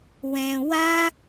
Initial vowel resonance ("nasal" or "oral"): nasal